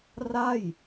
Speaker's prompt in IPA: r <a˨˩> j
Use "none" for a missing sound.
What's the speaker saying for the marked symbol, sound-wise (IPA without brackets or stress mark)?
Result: a˥˩